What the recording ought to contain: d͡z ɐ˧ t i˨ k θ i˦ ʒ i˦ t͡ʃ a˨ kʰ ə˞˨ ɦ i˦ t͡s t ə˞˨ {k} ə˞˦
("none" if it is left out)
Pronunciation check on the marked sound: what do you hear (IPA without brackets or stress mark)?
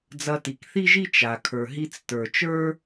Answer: t͡ʃ